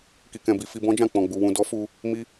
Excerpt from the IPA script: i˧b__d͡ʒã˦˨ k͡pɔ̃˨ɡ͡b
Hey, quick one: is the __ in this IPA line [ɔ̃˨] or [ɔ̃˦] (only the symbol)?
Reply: ɔ̃˦